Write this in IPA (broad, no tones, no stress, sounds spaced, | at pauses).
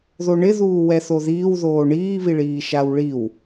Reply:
ð o ɳ ɪ ð uː w ɛ θ o ð iː w ð oː ɳ iː β i ɭ iː ʃ a w ɭ i w